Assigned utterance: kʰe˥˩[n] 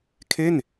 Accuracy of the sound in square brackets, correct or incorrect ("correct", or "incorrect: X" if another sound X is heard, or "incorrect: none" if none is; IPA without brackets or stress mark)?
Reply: correct